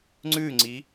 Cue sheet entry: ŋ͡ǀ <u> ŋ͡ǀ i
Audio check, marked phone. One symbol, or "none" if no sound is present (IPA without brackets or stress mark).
ʉ